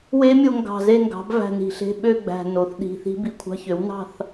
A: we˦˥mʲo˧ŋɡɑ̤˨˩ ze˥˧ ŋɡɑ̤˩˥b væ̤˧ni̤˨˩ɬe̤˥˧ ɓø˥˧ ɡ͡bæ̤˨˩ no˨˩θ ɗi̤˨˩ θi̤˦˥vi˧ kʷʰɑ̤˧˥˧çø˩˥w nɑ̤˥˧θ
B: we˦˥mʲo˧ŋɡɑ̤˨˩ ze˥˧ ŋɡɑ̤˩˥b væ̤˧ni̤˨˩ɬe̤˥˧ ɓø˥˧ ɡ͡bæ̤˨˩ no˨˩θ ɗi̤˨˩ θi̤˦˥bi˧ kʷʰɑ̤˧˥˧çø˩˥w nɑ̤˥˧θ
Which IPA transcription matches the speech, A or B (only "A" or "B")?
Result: B